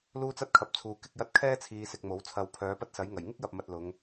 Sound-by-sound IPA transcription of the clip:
luː˥t͡sɐ˥t̚kʰɐ˨p̚t͡sʰuː˨ kɪ˧k̚jɐ˧t̚ kʰɛː˥t͡sʰiː˨ sɪ˧k̚mo˨˥wt͡sʰɐ˧w pʰœː˨˧pɐ˥t̚sɐ˨˥jŋɐ˨˩j ŋɪ˥k̚jɐ˨p̚mɐ˨t̚ lʊ˨˧ŋ

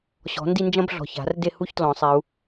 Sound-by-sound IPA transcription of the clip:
ɕɔ̤˨˩˦ndi˥˧nd͡ʒɐ̃˥b ɮɔ̤˨˩ça̤˨˩˦r de˥˧hu˥çtlɔ̃˨˩˦sˤe˨˦u̯

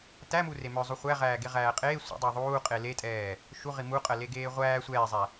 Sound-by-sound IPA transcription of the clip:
tæmure mœzˤu χʷæʁæːɡeʁæː qʼeː sʷḭdˤɜ ðˤuːqʼe letʼɛː | ʃuʁi muqʼɜleɡeː ʁʷæː sʷɛːzˤæ

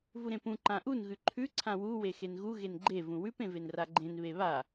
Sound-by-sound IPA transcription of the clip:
vuɾẽpũ ǃãʔun ɣʉǃʰʉ ǀʰãwu wexenɣu ɣenɡ͡ǃe vũwʉp ẽvenraɡ͡ǃẽn βeβa

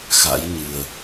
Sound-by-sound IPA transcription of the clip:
xa̰˧˥jɲɨ˨˩ə̯

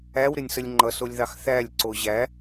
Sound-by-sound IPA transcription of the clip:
æwɾɪnʲsəlʲ ŋ͡ǃʌsolʲðɑx θælʲ ǀoʑæ

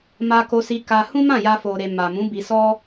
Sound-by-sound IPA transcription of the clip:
ma˧ko˧si˧ka˧ hũ˦mã˦˨ja˧ fo˨ɾe˨ ma˨mũ˨˦bi˧sɔ˦

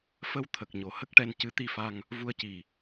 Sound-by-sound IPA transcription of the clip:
fə˧w t̪ʰə˨˩k̚ ɲo˨˩hə˦˥k̚ʈɛ˧n cɨ˧˥t̪i˧fa˧ŋ | vu˧ə̯ci˨˩

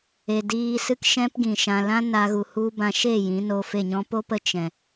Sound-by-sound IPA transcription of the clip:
e˨ diː˧sɨ˦k ʃɛ̃˦pɡĩ˨ ʃã˨lã˦ na˦ɣu˧ hu˦ bã˧ʃe˦˨ jĩ˨˦no˧fe˦˨ɲɔ̃˦ po˦pə˧ t͡ʃɛ̃˨

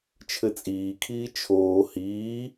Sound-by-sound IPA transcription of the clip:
t͡ʃʰɘt͡sʼiːkʰiː t͡ʃʰoː hiː

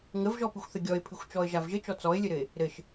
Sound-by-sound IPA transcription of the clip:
ŋəvʒɔpɨxʷθɘ ɡʲɔɪ̯pʰɨxʷt͡ʃɔə̯ʒav ʒɘt͡ʃɔ t͡sɔɪ̯lʲɘɾɘɪ̯ | ɾɘʃ

